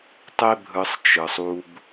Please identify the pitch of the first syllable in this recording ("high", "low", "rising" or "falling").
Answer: high